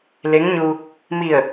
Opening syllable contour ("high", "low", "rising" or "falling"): rising